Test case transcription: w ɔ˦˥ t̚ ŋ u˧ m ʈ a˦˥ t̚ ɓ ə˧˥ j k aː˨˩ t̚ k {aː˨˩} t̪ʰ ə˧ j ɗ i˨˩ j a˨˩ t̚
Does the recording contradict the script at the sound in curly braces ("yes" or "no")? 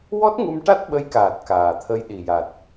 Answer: no